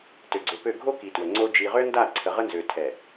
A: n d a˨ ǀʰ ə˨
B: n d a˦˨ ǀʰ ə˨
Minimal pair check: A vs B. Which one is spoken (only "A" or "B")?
B